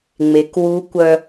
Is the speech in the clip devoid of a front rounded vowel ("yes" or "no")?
no